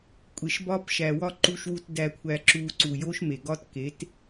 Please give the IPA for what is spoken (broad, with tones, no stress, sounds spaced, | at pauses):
kʷʼ e˨ ʃ b ɒ˦ p ʃ æ˨ w ɒ˦ ǃ u˧ ʃ w u˧ t d æ˧ kʷʰ æ˧ ǁ u˧ ǀ u˨ j o˦ ʃ m e˨ ɡ ɒ˦ t k e˨˦ t